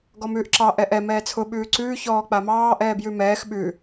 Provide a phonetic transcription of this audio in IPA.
ɡ ɔ m ʉː ʔ ǁ ɑ ʔ ɛ ʔ ɛ m ɛː t͡sʰ ʊ ɓ ʉː ǀ ʉː ç ɔː k͡p a m ɑː ʔ ɛː b j ʉ m ɛː x ɓ ʉ

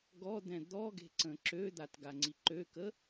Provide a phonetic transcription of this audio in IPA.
ɡ ɔ d̪ ɛ̃ d̪ ɔ ɡ e̤ ǀ ə̃ ǁ ø d̪ a t ɡ a ŋ͡ǀ i ǃ ø k ə

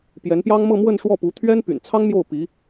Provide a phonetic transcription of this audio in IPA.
p j ɛ˧˥ n p j ɑ˥ ŋ m ɤ˥˧ m w ə˥˧ n ʂ w ɔ˥˩ p u˧˥ t̪ʰ ɥ ɛ˥ n p y̰˨˩ n t͡sʰ ɑ˥ ŋ m j o˥˩ ʊ̯ p i˧˥

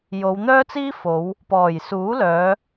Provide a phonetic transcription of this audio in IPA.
j o˨˧ w n̪ œː˥ t͡s iː˥ f o˨˧ w | p ɔː˨˩ j s uː˨˥ l œː˨˧

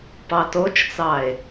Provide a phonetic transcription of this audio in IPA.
p ɑ t o t͡ʃ t͡s ɑ e̯

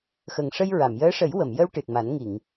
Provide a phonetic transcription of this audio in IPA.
x ə˨˩ ŋ ʂ ə˧ j ɹ a˨˩˨ m j əː˧˥ ʂ ə˨˩˦ j w ə˨˩˨ m j ə˧ w ʈ ɨ˨˩ t̚ m a˨˩˦ n ŋ i˨˩˨ ŋ

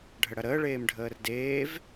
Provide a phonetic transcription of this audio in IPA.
ɖʱ ə ɽ ɐ ɾ əː ɭ eː m ɖʱ əː r d eː v

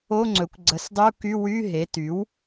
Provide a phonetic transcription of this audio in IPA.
o˧˥˧ ŋ͡ǀ ɵ˩˥ kʷ ɡ͡ǀ ə˩˥ s dˤ y˧˥˧ u̯ k y˧˥˧ w y˧˥˧ ɦ e˩˥ t y˩˥ w

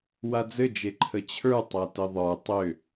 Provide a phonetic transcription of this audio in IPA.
w a d͡z ɘ d͡ʒ e ǃʰ ə t͡ɕʰ ə˞ tˤ a t ɘ ðˤ ə˞ tˤ ʏ

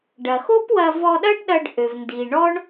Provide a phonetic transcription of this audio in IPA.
ɖ ɐ˩ x o˥ p w ɐ˧ v ɔ˧ ɗ ɐ˥ ɖ ɗ ɐ˧ ɖ ʔ ø˩ v n d i˩ ɳ ɔ˥ ɳ

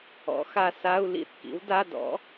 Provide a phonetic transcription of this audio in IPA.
ɔ̰˩˥ x a˧ s a˧˥˧ u̯ l ḭ˥˩ θ k ḭ˩˥ w d a˧˥˧ d ɔ̰˩˥

